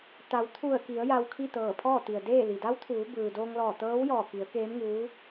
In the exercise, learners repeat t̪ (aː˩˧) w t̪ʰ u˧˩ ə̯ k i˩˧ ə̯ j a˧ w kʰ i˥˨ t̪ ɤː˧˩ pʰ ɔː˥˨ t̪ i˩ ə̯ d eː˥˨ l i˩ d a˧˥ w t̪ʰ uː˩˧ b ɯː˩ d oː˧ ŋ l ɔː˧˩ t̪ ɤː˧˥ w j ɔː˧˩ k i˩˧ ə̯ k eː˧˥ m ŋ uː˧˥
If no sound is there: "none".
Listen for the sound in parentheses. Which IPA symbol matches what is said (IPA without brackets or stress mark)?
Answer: a˩˧